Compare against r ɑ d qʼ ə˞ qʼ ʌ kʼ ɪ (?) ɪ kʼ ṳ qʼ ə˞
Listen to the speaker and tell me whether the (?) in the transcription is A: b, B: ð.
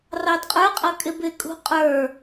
A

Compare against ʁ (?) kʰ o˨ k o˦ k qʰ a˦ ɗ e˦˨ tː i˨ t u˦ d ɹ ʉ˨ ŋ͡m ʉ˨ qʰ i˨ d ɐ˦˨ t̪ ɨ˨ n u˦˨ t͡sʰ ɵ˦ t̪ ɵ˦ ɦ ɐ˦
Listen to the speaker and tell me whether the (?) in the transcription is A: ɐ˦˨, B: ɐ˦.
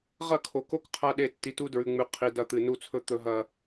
A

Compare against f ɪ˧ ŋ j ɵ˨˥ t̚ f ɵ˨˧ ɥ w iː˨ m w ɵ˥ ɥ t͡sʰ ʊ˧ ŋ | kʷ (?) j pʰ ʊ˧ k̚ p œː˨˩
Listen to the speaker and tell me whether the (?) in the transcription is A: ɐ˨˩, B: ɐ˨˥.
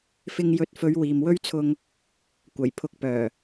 A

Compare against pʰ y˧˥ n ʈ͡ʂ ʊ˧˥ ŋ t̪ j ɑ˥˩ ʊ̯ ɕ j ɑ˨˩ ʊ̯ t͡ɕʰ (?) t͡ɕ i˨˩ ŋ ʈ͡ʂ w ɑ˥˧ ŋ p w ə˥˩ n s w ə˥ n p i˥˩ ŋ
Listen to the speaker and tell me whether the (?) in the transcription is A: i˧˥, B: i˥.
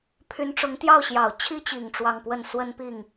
B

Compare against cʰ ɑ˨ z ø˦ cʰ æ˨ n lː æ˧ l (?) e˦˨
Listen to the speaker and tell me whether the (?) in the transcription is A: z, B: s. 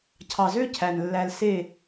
B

